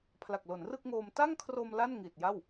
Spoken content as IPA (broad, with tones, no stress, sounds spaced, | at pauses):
pʰ l a˨˩ k̚ l o˩˦ n r ɯ˥˩ k̚ ŋ oː˧ m t a˥˩ ŋ kʰ r o˧ m l a˥˩ n ŋ i˨˩ t̚ j a˥˩ w